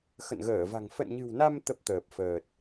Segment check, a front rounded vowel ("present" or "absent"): absent